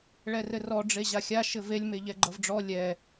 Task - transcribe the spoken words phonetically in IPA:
ɭ ɛ r ɘ r ɔ ɖ͡ʐ e ʑ a xʲ a ʃ ɘ v e lʲ m e ʎ ɛ ɡ͡ǃ ʌ v ɖ͡ʐ ɔ lʲ ɛ

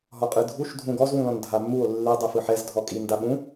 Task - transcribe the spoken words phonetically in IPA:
ɦ ɔ qʼ ɯ dʱ u ʃ dʱ ũ ɡ ɔ z w ũ l ɔ̃ n dʱ a mː u o̯ lː i dˤ u f ɯ ħ ɛ z dʱ ɔ kʼ i n d a ɓ ũ

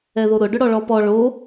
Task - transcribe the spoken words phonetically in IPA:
ɛ ð o ɾ ʊ ɖ ʊ ɽ ɔ ɭ ɔ p ɔ ɭ o

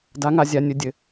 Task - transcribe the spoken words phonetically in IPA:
d a˧˥ ŋ a˧ zʲ a˧ nʲ ɵ˧ dʲ ɘ˧

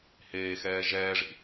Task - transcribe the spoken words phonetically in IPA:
h eː x ɛː ʒ ɛː ʐ ḭ

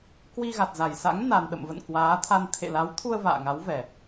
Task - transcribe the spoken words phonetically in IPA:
k w i˧ ɣ a˨˩ t̚ z a˧˩ j s a̰˧˥ ŋ n a˨˩ n ɗ ə̰˧˨ m v ə̰˧˨ n k w aː˨˦ t̪ʰ a˧ n t̪ʰ ḛ˧˨ l a˨˦ w t̪ʰ u˧ ə̯ v a̰ː˧˨ ŋ a˨˦ w v ɛ˨˩

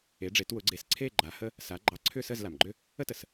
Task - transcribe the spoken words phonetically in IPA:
e˩˧ ɖ͡ʐ e˩˧ t w ʊ˩˧ ɡ͡ǀ e˩˧ s ǀʰ e˦˨ ɡ͡ǃ a˩˧ h ə˦ | s a˩˧ ɡ͡ǃ ɑ˩˥ ǀʰ ʏ˦˨ s ə˦˨ z l a˩ m ɡ͡ǃ ʏ˦ | ə˦ t ə˩ s

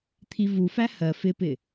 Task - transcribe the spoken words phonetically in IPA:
t̪ʰ i v u f æ h ɜ f ɪ p ɪ

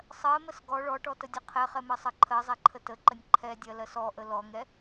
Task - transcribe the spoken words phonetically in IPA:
sˤ ɜ m ə s ɡ ɔ ɭ ɔ ʈ ɔ t ə dʲ ə qʰ ɛ χ ɛ m ɜ sˤ ɜ ǃʰ ɜ zˤ ɛ ǃʰ ə t ə ǃ ə nʲ ǃʰ ɛ dʲ ɜ l ɜ s ɔ ʔ ə l ɔ ŋ ɛ

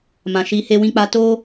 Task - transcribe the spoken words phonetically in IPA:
m ã˨ ʃ i˨˦ h e˦ w ĩ˦ k͡p a˦ t o˦

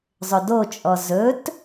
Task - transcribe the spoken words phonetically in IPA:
zˤ ʏ d o t͡ʃʼ ɔ z ɵ t

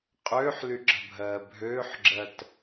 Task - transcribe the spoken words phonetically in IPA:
qʼ øː ħ l y ǁ ə̤ bʱ ɜː bʱ øː ħ ɡ͡ǁ ɜ t

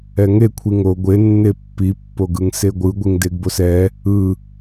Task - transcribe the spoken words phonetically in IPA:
ɛ ŋ e kʷʰ i ŋ o ɡʷ e nː e pː i pː o ɡ ɯ ŋ s e ɡʷ ɯ ɡʷ i ŋ d e ɡ b o s ɛ | ɯ

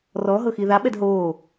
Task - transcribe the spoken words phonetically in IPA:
r ɔ ɦ ɤ x i ð a ɓ ɛ d ɦ oː

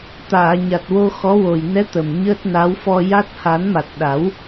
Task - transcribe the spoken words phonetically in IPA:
t̪ aː˨˩˨ ɲ a˨˩ t̚ w o˧ x ɔ˧˥ w o˨˩ j n ɛ˧˥ t̪ ə˨˩ m ɲ əː˦˥ t̚ n a˧˥ w f ɔ˧ j a˦˥ t̚ h a˨˩˦ n m a˨˩ t̚ ɗ a˨˩˦ w

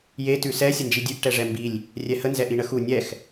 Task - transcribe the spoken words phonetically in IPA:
j e t ʉ s ɛ sʲ ə n d͡ʒ i dʲ ʉ ʔ ʈ ɛ ʐ ɛ m b i lʲ | rʲ ɛ h ə n z ɛ ʔ i ɳ ə x u nʲ ɛ x

